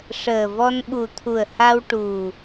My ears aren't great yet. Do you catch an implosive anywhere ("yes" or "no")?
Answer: yes